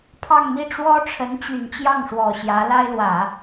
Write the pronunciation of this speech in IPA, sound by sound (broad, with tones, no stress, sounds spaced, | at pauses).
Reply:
pʰ ɑ˥˧ ŋ m i˥˩ ʈ͡ʂ w ɔ˥ ʈ͡ʂʰ ə˧˥ n t͡ɕ y˨˩ n t͡ɕ j ɑ˥˩ ŋ ʂ w ɔ˨˩ ɕ j ä˧˥ l a˥ ɪ̯ l w ä˨˩˦